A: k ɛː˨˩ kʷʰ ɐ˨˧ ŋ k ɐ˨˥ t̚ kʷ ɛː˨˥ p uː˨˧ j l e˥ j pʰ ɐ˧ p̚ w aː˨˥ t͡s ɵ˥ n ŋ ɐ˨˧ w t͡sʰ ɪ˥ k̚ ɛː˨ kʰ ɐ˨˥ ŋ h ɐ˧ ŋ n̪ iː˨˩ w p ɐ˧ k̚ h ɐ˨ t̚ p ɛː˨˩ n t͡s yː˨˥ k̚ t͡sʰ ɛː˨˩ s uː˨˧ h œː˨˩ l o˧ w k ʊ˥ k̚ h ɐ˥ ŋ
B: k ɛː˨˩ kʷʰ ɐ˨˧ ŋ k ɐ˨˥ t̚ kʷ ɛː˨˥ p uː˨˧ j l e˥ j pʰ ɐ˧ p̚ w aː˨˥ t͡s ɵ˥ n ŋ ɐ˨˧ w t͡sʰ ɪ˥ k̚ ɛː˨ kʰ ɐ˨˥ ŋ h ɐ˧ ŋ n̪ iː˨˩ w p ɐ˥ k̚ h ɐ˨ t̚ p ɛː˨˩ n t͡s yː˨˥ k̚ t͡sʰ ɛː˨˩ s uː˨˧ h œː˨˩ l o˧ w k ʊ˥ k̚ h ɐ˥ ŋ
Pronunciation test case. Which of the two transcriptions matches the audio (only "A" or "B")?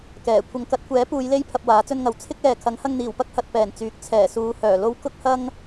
B